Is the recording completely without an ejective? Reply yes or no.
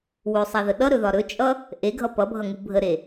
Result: no